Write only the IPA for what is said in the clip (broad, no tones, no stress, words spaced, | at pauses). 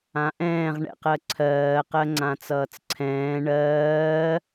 ãʔɛ̃ːʁ ɳɛ̰qɜǀʰɜː qɜŋ͡ǀãt͡sʌːt͡sǀʰɛ̃ː ɳɜː